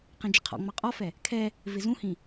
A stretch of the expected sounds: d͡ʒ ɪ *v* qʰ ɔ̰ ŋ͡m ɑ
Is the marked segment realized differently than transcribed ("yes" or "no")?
yes